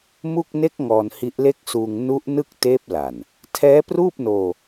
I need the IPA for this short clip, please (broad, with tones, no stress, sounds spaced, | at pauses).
m u˥˩ k̚ n e˦˥ k̚ ŋ ɔː˧ n h i˦˥ ʔ l e˥˩ k̚ s uː˧ ŋ n u˦˥ ʔ n ɯ˥˩ k̚ t eː˦˥ p̚ l a˨˩ n | tʰ ɛː˦˥ p r uː˥˩ p̚ n oː˧